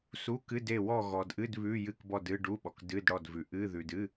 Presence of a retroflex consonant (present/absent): present